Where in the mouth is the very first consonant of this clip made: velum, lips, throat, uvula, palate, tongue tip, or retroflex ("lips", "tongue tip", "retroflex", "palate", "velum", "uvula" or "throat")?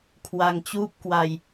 velum